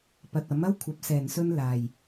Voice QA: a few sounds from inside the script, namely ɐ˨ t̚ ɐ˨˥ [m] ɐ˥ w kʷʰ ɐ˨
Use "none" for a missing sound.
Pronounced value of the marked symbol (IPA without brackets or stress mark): m